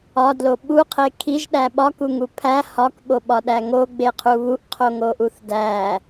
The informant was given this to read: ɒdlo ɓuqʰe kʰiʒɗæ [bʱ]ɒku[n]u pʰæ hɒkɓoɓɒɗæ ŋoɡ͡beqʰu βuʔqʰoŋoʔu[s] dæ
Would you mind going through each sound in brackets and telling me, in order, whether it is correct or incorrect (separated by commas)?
incorrect, incorrect, incorrect